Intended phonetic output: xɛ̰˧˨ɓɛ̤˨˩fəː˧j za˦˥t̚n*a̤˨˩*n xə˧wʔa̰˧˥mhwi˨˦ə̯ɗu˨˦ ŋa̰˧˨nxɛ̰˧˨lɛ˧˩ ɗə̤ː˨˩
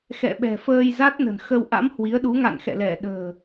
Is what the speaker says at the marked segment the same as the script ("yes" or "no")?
no